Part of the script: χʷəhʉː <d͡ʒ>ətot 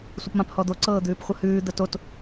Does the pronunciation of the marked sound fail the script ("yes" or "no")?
yes